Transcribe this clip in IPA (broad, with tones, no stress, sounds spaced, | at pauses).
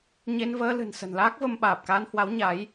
ɲ e˧ n v əː˧ l ɨ̤˨˩ n s ə̤˨˩ n l aː˦˥ k̚ v ə˧ m ɓ aː˨˩ p̚ k aː˧ n h w a˨˦ w ɲ a˨˦ j